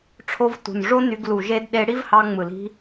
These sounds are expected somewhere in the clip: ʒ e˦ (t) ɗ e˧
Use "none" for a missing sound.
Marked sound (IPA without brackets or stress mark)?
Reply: d